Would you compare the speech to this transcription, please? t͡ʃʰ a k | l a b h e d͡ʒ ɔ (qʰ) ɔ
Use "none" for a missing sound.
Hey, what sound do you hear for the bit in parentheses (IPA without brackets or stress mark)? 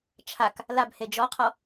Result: qʰ